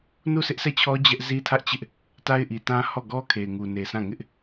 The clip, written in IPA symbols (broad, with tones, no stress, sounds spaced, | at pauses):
n u˦˨ sʰ ɪ˦ ʔ sʰ ɛ˦˨ t͡ɕʰ ɔ˦ d͡ʑ ɛ˦ ʔ z i˦ tʰ ä˦ ʔ t͡ɕ ɪ˦ ʔ | t a˦ ɪ̯ ʔ i˨ t ã˦ h ɔ˦˨ ɡ ɔ˦ kʰ e˨ ɪ̯ ŋ u˨ n e˨ sʰ ã˦˨ ŋ ɪ˦ ʔ